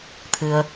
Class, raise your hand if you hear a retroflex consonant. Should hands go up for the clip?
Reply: no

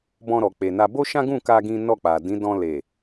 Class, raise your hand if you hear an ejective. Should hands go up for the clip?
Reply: no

